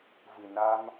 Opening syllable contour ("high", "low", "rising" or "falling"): low